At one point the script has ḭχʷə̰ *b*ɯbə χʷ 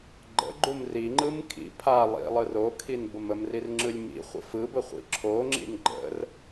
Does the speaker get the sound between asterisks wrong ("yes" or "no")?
yes